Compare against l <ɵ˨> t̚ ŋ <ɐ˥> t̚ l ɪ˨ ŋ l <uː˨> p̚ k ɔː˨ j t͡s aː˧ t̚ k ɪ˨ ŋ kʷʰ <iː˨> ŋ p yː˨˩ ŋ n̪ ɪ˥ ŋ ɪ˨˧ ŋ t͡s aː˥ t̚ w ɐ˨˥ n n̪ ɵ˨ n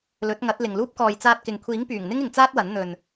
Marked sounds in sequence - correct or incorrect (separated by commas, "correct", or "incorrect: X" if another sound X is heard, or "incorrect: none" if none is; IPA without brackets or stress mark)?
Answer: incorrect: ɵ˨˥, incorrect: ɐ˨˥, incorrect: uː˥, incorrect: iː˨˥